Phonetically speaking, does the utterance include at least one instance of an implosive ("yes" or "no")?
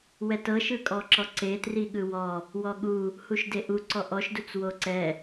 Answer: yes